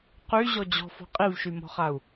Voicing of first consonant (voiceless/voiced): voiceless